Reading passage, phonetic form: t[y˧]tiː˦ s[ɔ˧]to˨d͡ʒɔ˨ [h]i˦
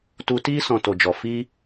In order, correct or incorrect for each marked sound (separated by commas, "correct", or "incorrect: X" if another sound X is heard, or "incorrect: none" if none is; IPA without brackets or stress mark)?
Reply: incorrect: u˧, incorrect: ɔ̃˧, incorrect: f